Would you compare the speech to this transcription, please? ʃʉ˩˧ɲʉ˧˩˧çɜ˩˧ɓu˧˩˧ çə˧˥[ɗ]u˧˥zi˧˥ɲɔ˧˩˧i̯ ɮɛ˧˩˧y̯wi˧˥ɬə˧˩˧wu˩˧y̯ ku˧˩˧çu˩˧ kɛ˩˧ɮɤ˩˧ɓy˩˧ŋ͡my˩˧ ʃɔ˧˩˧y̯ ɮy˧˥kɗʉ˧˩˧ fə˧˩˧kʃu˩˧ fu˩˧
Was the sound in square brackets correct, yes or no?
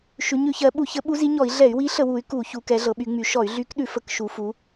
no